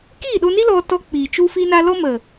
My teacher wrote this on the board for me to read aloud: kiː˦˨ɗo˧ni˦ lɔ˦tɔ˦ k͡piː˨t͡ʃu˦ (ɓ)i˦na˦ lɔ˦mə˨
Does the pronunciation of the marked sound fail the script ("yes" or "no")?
yes